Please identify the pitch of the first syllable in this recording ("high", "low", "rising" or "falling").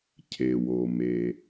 low